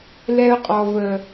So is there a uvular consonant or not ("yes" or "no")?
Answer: yes